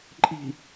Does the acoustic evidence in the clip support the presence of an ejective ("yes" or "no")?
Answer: yes